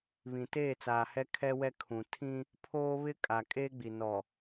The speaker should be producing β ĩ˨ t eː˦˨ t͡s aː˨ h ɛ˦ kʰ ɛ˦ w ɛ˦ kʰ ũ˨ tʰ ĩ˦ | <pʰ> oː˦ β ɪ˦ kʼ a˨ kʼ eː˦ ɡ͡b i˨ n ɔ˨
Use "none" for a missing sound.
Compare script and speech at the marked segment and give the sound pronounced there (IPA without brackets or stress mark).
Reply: pʰ